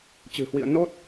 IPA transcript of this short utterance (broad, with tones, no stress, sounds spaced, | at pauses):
t͡ɕ ɨ̤˨˩ h w ḭ˧˨ ə̯ n o˦˥ t̚